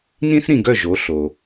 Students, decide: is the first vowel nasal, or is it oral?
nasal